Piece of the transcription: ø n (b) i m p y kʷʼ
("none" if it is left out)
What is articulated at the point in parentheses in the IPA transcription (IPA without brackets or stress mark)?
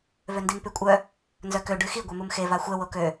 d